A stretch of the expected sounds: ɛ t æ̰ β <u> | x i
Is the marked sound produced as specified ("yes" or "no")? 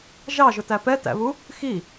yes